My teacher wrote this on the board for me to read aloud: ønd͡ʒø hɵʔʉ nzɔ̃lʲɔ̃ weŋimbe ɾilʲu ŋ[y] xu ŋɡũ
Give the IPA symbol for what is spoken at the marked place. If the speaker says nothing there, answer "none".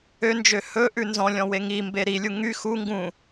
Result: y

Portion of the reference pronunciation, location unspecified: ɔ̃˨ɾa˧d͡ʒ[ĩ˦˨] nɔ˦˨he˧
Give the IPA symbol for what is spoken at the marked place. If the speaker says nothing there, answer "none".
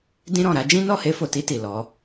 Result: ĩ˦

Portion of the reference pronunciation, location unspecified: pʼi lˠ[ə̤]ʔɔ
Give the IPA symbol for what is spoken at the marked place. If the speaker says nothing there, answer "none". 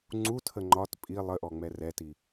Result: ə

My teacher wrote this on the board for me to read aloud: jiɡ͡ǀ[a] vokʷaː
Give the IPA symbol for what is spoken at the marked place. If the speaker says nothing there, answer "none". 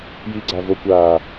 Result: a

